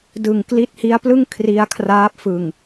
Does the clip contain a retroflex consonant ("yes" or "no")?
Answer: no